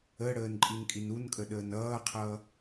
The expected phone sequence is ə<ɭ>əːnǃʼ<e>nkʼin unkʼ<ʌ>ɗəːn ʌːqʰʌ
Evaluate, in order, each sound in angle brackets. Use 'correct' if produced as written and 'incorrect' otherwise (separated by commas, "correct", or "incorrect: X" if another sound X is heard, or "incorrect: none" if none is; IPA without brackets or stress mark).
incorrect: ɽ, incorrect: i, incorrect: ə